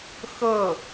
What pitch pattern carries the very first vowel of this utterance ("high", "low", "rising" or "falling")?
falling